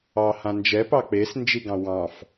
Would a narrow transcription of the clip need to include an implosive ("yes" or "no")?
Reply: no